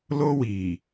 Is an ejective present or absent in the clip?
absent